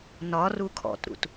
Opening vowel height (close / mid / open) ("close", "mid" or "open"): open